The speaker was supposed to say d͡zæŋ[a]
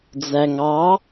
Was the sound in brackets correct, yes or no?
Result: no